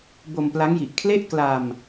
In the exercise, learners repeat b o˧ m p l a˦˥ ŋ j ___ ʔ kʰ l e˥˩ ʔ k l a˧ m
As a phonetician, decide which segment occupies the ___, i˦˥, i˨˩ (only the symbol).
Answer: i˨˩